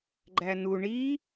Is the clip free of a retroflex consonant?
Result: no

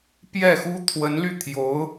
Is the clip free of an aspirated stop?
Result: no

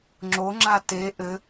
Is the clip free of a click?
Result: no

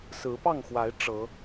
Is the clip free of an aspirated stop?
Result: yes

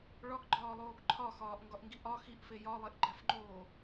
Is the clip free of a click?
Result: no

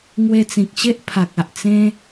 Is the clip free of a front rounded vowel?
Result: yes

